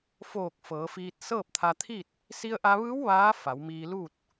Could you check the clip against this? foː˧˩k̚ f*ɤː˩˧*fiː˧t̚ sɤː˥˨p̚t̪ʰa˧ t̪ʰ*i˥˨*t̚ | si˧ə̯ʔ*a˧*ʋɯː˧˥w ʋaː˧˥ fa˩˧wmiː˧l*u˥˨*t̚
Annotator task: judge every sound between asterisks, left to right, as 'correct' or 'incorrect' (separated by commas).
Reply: correct, correct, correct, correct